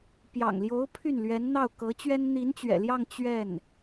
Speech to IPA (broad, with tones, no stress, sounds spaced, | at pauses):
p j ɑ̰˨˩ ŋ l j o˧˥ ʊ̯ pʰ y˥˩ n l ɥ ɛ˧˥ n n̪ ɑ˥˩ ʊ̯ k ɤ˧˥ t͡ɕ ɥ ɛ˥ n n̪ i˧˥ n t͡ɕ ɥ ɛ̰˨˩ l j ɑ˥˧ ŋ t͡ɕ ɥ ɛ˥˩ n